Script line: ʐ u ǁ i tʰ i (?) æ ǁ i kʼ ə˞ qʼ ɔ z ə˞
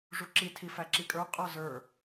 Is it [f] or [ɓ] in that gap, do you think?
f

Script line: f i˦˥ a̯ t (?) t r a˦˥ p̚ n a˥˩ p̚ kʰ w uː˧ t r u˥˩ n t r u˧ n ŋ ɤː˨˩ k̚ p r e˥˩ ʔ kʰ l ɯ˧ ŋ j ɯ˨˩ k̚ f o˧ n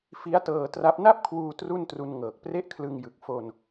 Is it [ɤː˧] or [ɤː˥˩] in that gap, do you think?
ɤː˧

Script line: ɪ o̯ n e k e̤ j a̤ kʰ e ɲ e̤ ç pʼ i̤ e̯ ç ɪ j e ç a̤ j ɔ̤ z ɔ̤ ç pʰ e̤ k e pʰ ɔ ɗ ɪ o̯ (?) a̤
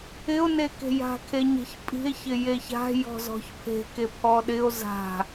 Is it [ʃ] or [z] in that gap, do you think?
z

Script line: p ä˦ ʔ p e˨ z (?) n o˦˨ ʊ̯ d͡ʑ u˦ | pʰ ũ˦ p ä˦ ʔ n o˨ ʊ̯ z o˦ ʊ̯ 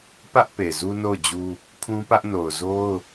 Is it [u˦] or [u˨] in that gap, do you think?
u˦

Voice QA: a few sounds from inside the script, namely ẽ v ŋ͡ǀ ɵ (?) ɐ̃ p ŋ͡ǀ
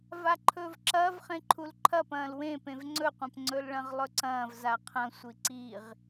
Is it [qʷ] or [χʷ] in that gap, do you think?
qʷ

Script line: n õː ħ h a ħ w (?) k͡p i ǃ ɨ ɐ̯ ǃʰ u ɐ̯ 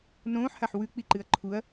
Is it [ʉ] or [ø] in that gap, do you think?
ʉ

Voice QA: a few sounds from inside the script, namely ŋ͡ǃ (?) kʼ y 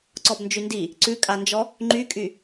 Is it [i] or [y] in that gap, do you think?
y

